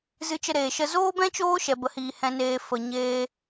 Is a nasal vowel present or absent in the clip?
present